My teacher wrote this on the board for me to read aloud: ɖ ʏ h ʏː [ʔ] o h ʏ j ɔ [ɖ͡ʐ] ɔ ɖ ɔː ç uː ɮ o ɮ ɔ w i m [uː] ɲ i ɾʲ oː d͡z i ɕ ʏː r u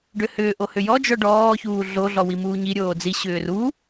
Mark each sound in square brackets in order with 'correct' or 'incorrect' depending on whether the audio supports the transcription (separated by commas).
correct, incorrect, correct